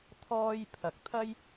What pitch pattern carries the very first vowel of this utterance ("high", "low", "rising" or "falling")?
high